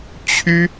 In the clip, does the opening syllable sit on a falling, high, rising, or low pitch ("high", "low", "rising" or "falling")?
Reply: high